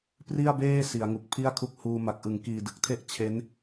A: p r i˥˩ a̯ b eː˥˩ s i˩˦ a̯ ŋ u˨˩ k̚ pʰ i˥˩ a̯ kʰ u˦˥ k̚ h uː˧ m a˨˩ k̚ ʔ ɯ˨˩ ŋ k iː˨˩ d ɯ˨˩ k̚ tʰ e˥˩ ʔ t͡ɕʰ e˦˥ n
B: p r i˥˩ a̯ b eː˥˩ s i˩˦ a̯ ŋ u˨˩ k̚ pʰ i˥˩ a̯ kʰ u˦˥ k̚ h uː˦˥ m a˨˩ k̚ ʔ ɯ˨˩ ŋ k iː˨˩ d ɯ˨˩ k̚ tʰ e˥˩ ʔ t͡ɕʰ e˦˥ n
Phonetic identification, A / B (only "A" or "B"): A